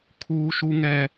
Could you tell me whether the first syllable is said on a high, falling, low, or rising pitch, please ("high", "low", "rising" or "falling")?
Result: high